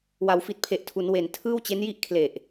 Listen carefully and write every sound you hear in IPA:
w a˩˦ w f i˨˩ t̚ pʰ e˨˩ ʔ tʰ u˩˦ n w e˨˩ n tʰ ɯː˥˩ w t͡ɕ e˦˥ n j i˥˩ ʔ kʰ l e˨˩ ʔ

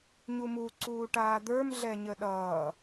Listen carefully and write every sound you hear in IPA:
ɲ u m u ǀ uː ʈ aː d̪ ə˞ m ɮ ɛ ɲ ə ɗ ʌː

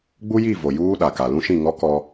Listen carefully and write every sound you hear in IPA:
ɡ͡b u˦ j i˦˨ v o˨ j uː˦ ɗ a˨ k a˨ l ũ˦ ʃ ĩ˦˨ ŋ ɔ˦ k ɔ˦

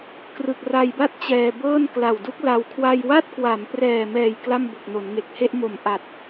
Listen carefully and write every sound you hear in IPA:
k r ɯ˨˩ k̚ r a˧ j b a˥˩ t̚ t͡ɕ ɛː˧ b ɤː˥˩ n k l a˨˩ w d u˦˥ k̚ l a˧ w kʰ w a˧ j w a˥˩ t̚ k w a˩˦ m p r ɛː˨˩ m ɛː˨˩ j k l a˥˩ m b o˨˩ k̚ n o˩˦ n ŋ e˨˩ k̚ h e˥˩ ʔ m o˩˦ m ʔ a˨˩ t̚

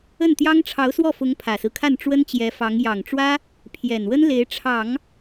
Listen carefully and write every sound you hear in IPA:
ə˥˩ n t̪ j ɑ˥ ŋ ʈ͡ʂʰ ɑ˧˥ ʊ̯ s w ɔ˥˩ f ʊ˧˥ ŋ pʰ ä˨˩ s ɹ̩˦ kʰ a˥˩ n ʈ͡ʂ w ə˥ n t͡ɕ j ɛ˧˥ f ɑ˧˥ ŋ j ɑ˨˩ ŋ ʈ͡ʂ w ä˥ | pʰ j ɛ˨˩ n w ə˥ n l e˧˥ ɪ̯ ʈ͡ʂʰ ɑ˨˩˦ ŋ

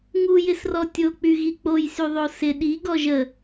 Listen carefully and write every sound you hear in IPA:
ŋ u j ɪ s r ɔ tʲ o k͡p y ɣ i k͡p o j s y ðˤ o s ɪ ɗ i ɡ ɔ ʒ ə

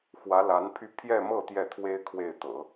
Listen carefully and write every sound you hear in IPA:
x w ä˧˥ l a˧˥ n pʰ y˥˧ pʰ j ɛ˥˧ m ɤ˥˧ t̪ j ɛ˥˩ t̪ʰ w e˥ ɪ̯ kʰ w e˥˩ ɪ̯ t̪ ɤ̰˨˩˦

